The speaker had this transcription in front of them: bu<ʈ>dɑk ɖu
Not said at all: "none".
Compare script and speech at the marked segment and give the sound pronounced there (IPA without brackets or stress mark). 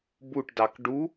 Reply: ʈ